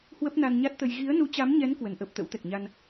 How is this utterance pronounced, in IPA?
h w ə˦˥ p̚ n a˧ n ɲ a˦˥ t̚ t̪ ə˧ j ɣ i˨˦ ə̯ n u˨˦ t͡ɕ a˨˦ m ɲ ɛ˨˦ n k w ə˧ n ʔ əː˦˥ p̚ t̪ ə̰˧˥ w t̪ ɛ˨˩ k̚ ɲ a˧ n

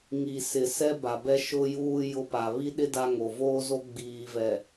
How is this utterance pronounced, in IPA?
ŋ i˨ s ɪ˨ s ɛ˦ b a˨ b ɛ˦ ʃ ʊ˦ j uː˦ j ʊ˦ p a˨ β i˦ ɗ ɪ˦ d a˦ ŋ o˨ v oː˦ z o˦ ɡ͡b iː˨ v ɛ˨

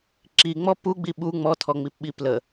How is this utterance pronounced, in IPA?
ǁ i ŋ͡m ɔ p u ɡ͡b i ɓ u ŋ͡m ɔ tʰ ɔ ŋ͡m i p ɓ i p l ə

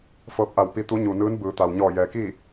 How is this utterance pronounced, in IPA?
f ɤː˧˥ p̚ ʔ a˧˩ w p i˧ t̪ u˧˥ ɲ u˩ n ɯː˧˥ n b ɯː˩˧ t̪ a˩ w ɲ ɔː˧˩ j ɛː˩ k iː˥˨

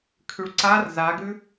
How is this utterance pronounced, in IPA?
kʰ ʉ ɭ ǀ a r z a ɡ ʉ

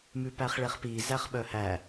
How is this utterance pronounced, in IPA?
m ʉ p æ χ ɭ e χ p i z æ χ ɓ œ h æ

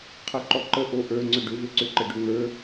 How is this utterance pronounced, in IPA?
qʰ ə ǃ ɔ ǃ ə ʔ o ʔ ə˞ ŋ͡ǀ ʏ ɖ ʏ v ø ǀ ʏ ǃ ə ɖ ø ŋ ə˞

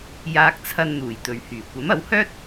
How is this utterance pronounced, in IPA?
j aː˧ k̚ t͡sʰ ɐ˧ n n̪ uː˨˩ j t̪ ɵ˨ ɥ h yː˨˩ kʷ ɐ˨˥ m ɐ˨˥ w h œː˥ t̚

